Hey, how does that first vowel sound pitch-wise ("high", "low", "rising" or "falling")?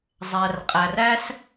low